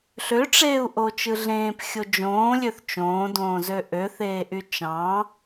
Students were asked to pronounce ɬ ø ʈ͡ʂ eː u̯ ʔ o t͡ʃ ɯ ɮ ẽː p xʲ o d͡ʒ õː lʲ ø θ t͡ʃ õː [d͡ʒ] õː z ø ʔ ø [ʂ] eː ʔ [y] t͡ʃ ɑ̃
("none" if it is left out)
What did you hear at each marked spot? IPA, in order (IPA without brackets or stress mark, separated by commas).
d, θ, y